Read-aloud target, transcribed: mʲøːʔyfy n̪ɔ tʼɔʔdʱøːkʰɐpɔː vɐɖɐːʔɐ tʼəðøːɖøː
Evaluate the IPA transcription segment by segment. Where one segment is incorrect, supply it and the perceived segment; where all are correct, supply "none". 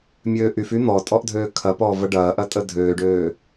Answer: ð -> dʱ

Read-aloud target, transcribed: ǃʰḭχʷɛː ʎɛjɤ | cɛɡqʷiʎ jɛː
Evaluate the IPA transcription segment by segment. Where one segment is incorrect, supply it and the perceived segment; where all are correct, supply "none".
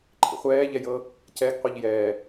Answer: none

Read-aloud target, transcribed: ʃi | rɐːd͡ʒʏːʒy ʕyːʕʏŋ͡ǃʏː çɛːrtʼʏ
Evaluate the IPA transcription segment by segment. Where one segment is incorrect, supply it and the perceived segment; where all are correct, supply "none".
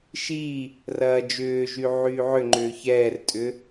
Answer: none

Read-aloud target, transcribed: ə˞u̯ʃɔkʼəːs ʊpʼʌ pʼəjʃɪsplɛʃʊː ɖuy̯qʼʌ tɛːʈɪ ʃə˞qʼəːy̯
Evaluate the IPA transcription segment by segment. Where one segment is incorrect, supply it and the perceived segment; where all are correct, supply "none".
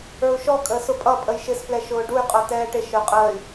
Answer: none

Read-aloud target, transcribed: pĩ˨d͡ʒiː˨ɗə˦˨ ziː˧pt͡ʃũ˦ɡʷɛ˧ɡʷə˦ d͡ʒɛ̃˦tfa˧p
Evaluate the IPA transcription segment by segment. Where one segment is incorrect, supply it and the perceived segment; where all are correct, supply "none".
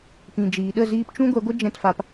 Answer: none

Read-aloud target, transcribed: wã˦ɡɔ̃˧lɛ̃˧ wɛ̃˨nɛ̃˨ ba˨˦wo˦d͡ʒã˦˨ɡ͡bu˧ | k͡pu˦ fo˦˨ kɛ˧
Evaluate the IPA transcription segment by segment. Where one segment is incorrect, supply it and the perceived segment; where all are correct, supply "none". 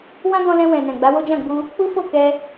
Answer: b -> ɡ͡b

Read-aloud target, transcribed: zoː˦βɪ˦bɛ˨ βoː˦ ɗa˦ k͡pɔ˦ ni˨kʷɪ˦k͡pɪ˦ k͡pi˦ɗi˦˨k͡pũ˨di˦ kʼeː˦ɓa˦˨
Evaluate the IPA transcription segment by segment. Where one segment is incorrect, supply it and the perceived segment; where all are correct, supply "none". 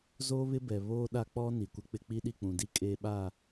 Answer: none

